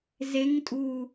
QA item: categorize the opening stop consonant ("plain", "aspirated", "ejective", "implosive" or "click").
ejective